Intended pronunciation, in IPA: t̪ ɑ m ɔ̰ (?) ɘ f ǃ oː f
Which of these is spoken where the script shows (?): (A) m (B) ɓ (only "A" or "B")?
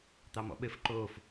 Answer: B